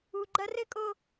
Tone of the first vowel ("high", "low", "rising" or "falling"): high